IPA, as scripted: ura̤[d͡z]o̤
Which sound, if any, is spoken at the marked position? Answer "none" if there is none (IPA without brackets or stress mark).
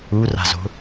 z